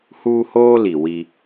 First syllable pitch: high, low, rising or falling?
high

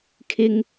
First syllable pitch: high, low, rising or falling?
low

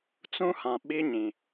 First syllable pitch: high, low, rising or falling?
high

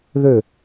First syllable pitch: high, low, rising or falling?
falling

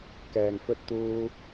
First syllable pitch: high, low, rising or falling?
low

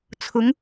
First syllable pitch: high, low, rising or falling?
rising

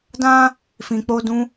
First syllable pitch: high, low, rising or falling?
high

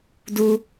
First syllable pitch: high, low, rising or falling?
low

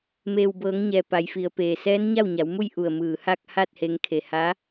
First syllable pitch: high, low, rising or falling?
low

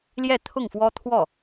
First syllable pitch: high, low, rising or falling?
falling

